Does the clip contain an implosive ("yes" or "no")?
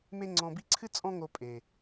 no